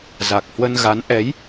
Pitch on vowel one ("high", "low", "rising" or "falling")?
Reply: low